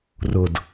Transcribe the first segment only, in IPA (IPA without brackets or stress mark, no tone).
r